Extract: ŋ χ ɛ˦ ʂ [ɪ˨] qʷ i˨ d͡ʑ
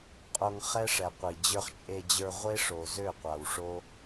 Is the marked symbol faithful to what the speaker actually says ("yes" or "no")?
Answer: no